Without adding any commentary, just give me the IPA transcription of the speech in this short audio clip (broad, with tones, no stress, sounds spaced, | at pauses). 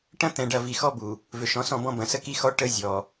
ʈ ɐ̃˦ t̪ ɛ̃˨ ɖ ɐ˨ v i˨ x ɔ˦ b u˨ | v ø˨ ʃ ɔ̃˨˦ s ɔ̃˦˨ b ɔ̃˦ b ɐ̃˨ s ə˦ k i˦ x ɔ˦ ʈ ə˦ zʲ ɔ˨